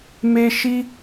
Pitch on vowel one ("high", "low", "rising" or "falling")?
high